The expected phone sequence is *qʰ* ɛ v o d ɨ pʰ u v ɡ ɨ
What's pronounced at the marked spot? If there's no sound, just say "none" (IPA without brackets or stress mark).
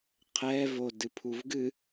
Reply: qʰ